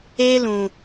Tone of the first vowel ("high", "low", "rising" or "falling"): high